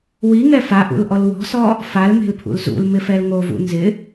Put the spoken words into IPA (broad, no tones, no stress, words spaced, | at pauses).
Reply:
wiŋɛ faʔṵlʔɔl wɔ̤sɔ | falme̤lpʰṵl zṵlmɪfɛl ŋovṵ nzɪ